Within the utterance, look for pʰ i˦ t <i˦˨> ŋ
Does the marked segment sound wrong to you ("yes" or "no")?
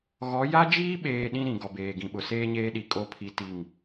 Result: no